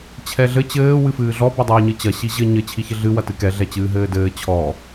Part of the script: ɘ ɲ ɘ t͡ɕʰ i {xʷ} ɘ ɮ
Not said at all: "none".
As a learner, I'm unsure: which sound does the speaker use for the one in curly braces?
ç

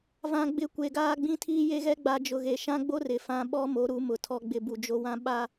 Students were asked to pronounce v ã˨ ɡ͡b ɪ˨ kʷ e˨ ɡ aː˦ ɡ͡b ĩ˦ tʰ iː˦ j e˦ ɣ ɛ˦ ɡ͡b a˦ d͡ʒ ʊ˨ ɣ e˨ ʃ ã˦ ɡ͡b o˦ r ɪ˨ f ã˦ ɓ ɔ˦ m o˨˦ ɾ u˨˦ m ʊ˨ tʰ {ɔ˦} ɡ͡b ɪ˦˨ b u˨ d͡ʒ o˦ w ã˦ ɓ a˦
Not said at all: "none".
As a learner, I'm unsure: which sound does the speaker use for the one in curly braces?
ɔ˦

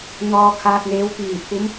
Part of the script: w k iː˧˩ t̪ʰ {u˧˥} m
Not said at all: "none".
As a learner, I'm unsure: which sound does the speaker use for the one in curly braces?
u˧˥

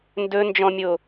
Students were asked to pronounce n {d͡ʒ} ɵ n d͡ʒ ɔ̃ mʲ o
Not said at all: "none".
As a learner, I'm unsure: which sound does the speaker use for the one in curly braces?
d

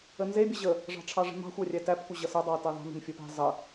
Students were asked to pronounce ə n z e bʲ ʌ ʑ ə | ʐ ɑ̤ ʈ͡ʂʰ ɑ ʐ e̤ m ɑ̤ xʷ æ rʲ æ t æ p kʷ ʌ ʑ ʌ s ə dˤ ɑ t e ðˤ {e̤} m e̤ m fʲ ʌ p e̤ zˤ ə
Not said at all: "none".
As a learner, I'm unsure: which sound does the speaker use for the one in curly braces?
e̤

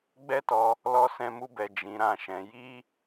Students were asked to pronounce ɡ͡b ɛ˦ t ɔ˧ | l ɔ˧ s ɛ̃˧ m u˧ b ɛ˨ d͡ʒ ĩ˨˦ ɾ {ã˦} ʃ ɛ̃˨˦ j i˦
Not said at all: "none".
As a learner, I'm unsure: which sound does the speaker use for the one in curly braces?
ã˦˨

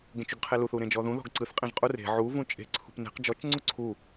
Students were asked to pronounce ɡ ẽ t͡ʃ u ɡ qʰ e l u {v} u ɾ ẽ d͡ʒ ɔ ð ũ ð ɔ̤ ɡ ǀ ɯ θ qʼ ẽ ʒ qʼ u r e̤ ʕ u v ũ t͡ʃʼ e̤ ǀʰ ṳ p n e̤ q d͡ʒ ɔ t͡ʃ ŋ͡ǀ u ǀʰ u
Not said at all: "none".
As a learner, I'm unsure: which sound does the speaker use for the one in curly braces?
θ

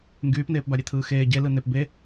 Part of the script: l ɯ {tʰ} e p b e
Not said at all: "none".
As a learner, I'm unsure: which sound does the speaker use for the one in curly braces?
n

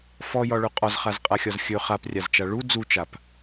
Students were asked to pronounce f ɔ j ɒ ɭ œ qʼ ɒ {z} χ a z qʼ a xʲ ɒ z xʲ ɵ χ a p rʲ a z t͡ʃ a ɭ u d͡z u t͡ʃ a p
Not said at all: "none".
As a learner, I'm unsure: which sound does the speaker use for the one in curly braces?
z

